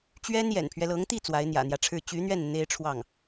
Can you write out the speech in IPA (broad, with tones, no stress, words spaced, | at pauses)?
t͡ɕɥɛ˥n jɛ̰˨˩npʰɥɛ˦lɤ˧˥ŋ t̪i˥˩ t͡swa˧˥ɪ̯n̪jä̰˨˩n̪jä˦ʈ͡ʂʰɻ̩˥˩ t͡ɕy˧˥n̪ɥɛ˥˩n n̪e˥ɪ̯ʈ͡ʂʰwɑ˥˩ŋ